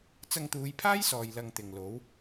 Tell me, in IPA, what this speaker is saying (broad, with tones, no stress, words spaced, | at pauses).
t͡sɐ˧ŋt̪uː˨˧jpʰaː˥jsɔː˨j lɐ˧ŋt̪ɪ˨ŋlo˨˥w